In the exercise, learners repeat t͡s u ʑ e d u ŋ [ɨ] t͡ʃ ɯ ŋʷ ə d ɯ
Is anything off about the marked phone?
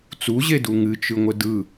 no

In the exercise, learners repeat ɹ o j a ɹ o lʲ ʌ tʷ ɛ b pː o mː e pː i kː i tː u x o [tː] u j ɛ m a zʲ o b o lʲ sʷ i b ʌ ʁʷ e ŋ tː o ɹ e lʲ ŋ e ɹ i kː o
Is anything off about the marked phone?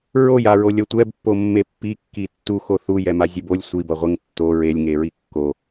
yes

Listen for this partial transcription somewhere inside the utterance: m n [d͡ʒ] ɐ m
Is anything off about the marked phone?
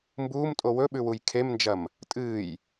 no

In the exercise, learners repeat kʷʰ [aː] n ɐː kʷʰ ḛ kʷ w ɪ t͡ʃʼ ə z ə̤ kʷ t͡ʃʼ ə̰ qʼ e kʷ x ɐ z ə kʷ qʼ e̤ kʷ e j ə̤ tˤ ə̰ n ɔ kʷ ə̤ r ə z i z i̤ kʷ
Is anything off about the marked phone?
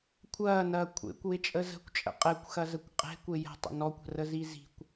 yes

